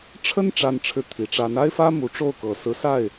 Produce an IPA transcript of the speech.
ʈ͡ʂʰ ə˥ n ʈ͡ʂ a˥˧ n ʈ͡ʂʰ ɻ̩˥˩ t̪ʰ i˨˩ ʈ͡ʂ a˧˥ n a˥ ɪ̯ f ä˥ m u˧˥ ʈ͡ʂ o˥˩ ʊ̯ k ɤ˨˩ s ɹ̩˧˥ s a˥˩ ɪ̯

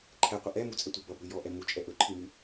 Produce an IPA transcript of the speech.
ǃʰ ɛ qʷ ə ʔ ɛ m u t͡sʼ ɛ tʷ i b ʌ b ɾ ʉ j ɔ ʔ ɛ m u t͡ʃʼ ɛ ʔ ɵ ǃʰ i m ʉ

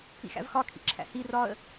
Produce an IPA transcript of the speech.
ḭ x æ̰ v x ɒ kʰ ḭ ǁʰ æ̰ h i r ɒ ə̯

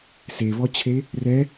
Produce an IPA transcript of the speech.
s e v ɔ t͡ɕʰ e | r ɛ

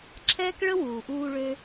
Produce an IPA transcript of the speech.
ǁʰ ɛː˦ k ɭ ə˦ w uː˨ ʔ uː˧ ɭ ø˦

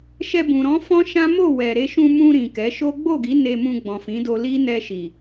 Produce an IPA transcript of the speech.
ʃ ɛ˧ b ũ˨ ɾ ɔ̃˨˦ f ɔ̃˦ ʃ ã˦ m o˦˨ w ɛ˨ ɾ e˧ ʃ ũ˧ m ũ˧ ɾ ĩ˨ k ɛ˨˦ ʃ o˦ ɡ͡b o˦˨ ɡ i˨˦ n e˧ m ũ˧ ɡ͡b ɔ̃˨ f ĩ˨˦ d o˧ l i˦ n ɛ˧ ʃ i˨

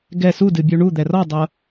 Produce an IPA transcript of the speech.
ɡ ɛ s u d ɨ bʲ u ɳ u d̪ ɛ r ɔ dˤ ɤ

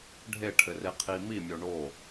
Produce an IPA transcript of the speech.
ɖʱ e ʈʰ ɘ r e qʰ i m i mʲ o ɳ o

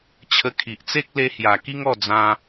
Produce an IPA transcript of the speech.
t͡ɕʰ ə˧ kʰ i˨ ʔ t͡s e˦ k̚ l e˧ h j a˨˩ k i˦ ŋ ɔ˥˧ d͡z ã˧

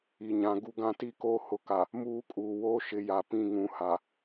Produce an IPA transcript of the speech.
i˨ ɲ ã˨ ɡ u˦ ɡ ã˦ t i˦ k oː˦ h ʊ˨ k a˨ | m uː˦ kʼ uː˨ w oː˦ ʃ ɪ˨ j a˨ p ĩ˦˨ ŋ ũ˨ h a˨

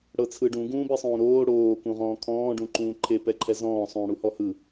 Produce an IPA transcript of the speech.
ɽ ɤ t͡sʰ ɯ ɖ ũ ɡ ũː b i sˤ ũː ɾ oː ɽ oː k ũ ʁ ɔ̃ː kʰ ɔ̃ː ɖ ũ ǃ ũː ǃʰ e p ɛ ǃʰ ɛ z ɔ̃ː sˤ ũː ɽ u h ɔ h ɯ

